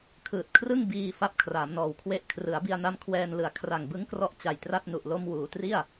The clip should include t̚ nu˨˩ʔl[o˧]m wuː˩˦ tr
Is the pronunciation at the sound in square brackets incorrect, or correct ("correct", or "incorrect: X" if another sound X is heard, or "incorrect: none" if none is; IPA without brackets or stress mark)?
correct